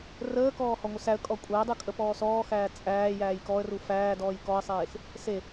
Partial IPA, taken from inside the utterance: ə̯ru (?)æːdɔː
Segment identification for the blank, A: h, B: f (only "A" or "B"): B